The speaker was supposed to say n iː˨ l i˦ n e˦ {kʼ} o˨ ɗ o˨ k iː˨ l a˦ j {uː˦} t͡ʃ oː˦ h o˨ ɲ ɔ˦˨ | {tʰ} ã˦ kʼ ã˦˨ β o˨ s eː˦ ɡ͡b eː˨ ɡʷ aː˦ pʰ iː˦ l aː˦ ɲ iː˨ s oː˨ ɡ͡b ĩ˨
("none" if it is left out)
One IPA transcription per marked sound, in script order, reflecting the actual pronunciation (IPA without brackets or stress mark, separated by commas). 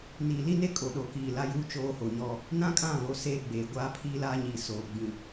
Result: kʼ, uː˦, n